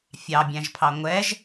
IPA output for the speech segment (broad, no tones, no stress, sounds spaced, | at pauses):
fʲ ɑ bʲ æ̃ ʒ pʰ ɑ ŋʷ ɛ ʒ